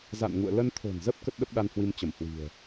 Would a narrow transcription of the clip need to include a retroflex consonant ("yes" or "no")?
no